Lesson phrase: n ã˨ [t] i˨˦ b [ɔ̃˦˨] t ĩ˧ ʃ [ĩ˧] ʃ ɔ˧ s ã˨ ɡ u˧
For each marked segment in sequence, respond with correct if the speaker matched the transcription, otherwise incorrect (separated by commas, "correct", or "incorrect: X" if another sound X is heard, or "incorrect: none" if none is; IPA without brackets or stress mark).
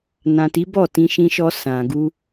correct, incorrect: ɔ˦˨, correct